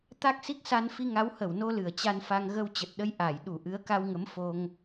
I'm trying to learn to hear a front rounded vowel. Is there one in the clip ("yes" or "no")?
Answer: no